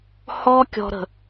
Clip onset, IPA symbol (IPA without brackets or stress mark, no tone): h